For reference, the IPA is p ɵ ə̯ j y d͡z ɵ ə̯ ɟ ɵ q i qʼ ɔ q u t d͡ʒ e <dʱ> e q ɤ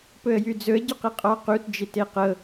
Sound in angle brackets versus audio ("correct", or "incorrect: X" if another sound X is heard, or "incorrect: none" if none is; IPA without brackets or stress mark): incorrect: t